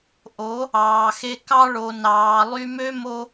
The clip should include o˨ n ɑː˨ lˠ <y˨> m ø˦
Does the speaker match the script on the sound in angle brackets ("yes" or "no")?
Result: no